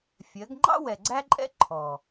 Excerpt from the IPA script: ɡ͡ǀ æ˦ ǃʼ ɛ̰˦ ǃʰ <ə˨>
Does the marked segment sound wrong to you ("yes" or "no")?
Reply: yes